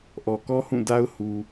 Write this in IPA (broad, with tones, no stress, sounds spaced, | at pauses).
ʔ ɔ˨ k ɔ˦ h ũ˦˨ d a˦ ʊ̯ h u˨